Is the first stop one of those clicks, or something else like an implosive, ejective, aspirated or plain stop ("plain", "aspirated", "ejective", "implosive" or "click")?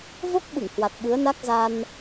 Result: plain